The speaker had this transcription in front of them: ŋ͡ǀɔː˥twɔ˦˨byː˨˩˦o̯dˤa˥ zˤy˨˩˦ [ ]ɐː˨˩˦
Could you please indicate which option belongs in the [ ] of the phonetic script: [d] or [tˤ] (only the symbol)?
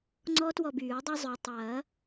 tˤ